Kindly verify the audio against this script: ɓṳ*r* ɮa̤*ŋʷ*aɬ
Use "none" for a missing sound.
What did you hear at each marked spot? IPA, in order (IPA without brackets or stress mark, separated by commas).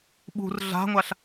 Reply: r, ŋʷ